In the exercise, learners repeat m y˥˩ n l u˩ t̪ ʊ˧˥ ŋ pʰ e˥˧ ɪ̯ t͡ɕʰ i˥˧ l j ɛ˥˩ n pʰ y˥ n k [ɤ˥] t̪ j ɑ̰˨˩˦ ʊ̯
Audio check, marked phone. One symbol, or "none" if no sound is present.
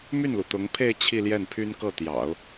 ɤ˥˩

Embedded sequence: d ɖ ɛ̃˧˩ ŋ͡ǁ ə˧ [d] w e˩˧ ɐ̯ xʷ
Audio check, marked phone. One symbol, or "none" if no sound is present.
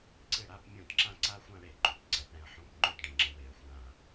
none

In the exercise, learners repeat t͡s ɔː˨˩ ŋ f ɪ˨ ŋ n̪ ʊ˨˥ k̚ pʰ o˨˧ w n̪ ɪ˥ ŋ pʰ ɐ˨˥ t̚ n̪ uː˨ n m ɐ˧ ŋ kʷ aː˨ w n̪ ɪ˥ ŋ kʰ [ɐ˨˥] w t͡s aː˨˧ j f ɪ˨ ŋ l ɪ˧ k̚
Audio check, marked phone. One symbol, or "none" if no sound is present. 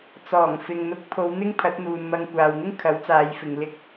ɐ˨˥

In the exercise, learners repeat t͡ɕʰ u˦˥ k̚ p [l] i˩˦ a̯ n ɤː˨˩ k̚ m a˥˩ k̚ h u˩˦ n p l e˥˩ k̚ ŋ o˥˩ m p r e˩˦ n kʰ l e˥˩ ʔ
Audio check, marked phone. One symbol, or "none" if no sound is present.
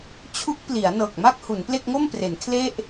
l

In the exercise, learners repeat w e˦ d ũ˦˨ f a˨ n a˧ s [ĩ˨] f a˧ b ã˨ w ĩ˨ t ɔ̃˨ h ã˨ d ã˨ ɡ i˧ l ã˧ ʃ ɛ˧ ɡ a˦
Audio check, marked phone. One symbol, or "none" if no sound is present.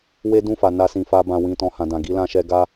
ĩ˨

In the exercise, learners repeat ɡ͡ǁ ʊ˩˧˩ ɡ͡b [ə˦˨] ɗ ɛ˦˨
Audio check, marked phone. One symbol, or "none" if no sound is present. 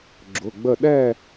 ə˦˨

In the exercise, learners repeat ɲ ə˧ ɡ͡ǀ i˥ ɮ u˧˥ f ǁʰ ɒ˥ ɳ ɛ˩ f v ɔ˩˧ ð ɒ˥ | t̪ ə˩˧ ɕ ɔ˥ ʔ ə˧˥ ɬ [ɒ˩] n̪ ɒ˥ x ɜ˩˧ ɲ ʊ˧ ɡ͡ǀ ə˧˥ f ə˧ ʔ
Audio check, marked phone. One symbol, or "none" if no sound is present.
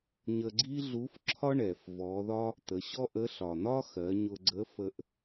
ɒ˩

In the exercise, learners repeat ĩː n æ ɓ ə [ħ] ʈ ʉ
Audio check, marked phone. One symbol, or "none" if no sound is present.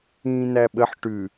ħ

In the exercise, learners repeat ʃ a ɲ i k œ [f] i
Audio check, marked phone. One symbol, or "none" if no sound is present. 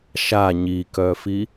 f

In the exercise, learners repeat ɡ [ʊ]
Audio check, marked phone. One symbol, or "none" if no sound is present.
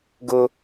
ʊ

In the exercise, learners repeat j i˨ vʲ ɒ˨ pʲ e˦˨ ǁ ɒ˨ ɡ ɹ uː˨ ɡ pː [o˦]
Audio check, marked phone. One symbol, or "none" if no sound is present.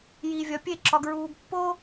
o˦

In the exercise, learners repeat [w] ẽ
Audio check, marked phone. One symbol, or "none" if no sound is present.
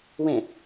w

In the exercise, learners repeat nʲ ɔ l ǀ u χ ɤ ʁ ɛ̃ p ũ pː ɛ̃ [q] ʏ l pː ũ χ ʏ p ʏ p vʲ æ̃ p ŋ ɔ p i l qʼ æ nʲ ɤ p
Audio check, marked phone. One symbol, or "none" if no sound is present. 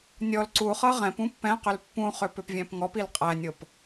q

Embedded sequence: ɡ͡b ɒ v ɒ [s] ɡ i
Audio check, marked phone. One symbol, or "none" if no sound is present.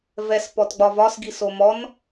s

